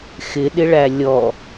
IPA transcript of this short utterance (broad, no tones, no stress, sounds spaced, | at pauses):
x ɪ ɗ ɪ ɭ æ lʲ ɔ